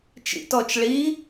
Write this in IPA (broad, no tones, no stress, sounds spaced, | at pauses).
t͡ʃ ḭ t ɔ t͡ʃ ɭ i